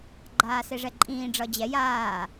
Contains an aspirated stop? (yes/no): no